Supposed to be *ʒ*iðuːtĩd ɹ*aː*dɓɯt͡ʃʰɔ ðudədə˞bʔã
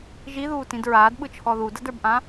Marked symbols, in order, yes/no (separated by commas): yes, yes